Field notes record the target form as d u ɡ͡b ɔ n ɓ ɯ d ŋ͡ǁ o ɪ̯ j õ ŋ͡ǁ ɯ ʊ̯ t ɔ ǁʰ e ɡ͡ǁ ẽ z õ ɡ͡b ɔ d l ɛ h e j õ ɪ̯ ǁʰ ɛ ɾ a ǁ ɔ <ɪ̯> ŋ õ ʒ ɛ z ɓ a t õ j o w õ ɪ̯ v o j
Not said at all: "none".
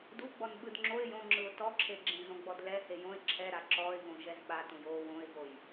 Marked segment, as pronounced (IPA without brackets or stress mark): ɪ̯